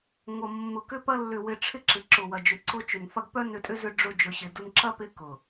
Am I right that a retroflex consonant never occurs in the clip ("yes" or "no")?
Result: no